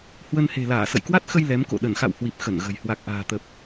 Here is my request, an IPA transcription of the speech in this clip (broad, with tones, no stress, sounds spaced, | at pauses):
h w ə˧ n h e̤˨˩ l aː˧˩ s ə̰˧˨ j k w a˦˥ t̚ x ə˧ j l ɛ˨˦ m k o̰˧˨ ɗ ə˧˩ n x a̰˧˨ w h w i˨˩ p̚ x ə˧˩ n ɣ ə̤˨˩ j h w a˨˩ k̚ ʔ a̤ː˨˩ t̪ ə˨˩ p̚